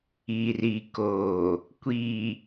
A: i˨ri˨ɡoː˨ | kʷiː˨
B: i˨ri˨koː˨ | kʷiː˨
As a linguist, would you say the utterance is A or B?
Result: B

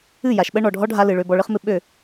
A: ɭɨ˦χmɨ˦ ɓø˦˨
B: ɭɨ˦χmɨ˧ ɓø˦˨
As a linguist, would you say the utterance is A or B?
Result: A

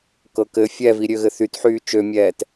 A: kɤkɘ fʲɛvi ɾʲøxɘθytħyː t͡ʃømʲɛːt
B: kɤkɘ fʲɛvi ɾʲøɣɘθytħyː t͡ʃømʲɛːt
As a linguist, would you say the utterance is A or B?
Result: B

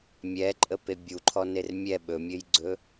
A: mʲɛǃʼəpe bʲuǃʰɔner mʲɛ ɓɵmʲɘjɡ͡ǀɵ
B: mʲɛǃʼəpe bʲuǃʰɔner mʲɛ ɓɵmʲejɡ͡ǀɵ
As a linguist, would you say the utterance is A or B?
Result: A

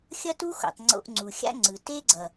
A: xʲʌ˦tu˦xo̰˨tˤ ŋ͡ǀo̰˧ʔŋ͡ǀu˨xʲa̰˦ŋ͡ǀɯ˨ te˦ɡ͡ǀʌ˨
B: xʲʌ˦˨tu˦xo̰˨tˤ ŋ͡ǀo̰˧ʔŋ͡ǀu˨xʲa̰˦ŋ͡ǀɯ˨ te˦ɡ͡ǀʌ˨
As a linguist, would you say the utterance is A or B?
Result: A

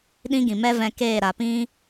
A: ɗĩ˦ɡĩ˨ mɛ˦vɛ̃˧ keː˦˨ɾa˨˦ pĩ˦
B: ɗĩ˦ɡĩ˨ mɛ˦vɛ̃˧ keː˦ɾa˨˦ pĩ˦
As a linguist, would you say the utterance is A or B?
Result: A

